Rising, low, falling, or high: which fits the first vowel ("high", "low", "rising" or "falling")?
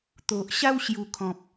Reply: low